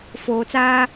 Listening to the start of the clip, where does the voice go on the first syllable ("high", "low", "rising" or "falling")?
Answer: low